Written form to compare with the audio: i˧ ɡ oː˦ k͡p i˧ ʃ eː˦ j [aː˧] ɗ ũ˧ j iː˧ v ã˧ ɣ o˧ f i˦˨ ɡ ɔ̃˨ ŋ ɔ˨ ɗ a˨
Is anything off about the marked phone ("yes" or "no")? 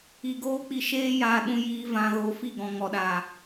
no